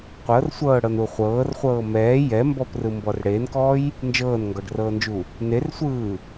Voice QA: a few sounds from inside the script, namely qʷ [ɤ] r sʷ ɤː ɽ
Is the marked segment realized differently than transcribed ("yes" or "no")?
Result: no